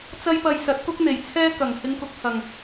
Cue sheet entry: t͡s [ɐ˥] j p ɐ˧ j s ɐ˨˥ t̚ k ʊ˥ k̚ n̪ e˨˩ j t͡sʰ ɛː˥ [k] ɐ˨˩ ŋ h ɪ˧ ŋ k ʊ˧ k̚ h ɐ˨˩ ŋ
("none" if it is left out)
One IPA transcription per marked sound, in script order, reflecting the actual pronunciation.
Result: ɐ˥, k

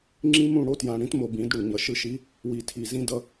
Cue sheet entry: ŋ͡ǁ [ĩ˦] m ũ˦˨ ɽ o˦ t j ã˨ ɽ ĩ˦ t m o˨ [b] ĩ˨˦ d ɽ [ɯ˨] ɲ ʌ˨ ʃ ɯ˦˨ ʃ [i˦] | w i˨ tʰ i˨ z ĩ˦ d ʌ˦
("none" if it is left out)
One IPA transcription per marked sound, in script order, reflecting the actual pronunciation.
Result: ĩ˦, b, u˨, i˦

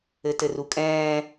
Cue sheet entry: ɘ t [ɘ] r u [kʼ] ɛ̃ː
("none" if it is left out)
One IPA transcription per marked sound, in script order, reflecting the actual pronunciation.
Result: ɘ, kʼ

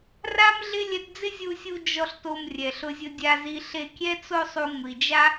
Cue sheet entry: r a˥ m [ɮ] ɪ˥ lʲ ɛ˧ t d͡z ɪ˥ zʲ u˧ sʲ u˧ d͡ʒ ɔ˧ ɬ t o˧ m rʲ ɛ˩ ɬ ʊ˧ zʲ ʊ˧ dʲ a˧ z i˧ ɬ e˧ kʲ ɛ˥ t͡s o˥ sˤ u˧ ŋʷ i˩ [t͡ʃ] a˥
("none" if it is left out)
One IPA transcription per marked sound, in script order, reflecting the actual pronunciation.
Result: ɮ, d͡ʒ

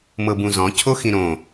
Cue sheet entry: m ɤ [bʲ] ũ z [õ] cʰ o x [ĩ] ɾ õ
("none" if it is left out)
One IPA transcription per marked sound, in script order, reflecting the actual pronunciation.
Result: b, ɔ̃, ĩ

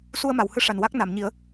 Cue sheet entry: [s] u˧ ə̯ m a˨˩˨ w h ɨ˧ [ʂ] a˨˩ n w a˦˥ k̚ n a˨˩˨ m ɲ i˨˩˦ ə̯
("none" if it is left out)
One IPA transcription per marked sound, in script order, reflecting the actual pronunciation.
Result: s, ʂ

